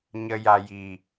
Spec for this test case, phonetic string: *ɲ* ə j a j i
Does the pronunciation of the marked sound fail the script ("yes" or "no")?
no